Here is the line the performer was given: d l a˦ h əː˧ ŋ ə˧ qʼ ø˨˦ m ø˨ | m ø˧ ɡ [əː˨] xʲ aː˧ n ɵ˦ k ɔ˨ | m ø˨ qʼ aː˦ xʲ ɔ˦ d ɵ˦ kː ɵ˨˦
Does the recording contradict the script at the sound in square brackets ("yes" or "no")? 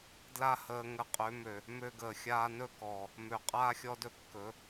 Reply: no